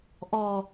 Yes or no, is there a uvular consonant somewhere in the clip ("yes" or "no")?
no